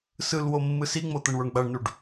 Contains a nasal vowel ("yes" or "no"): no